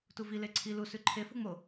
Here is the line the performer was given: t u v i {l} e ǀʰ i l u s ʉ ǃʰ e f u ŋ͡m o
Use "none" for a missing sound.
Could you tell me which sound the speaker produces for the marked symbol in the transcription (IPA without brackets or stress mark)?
l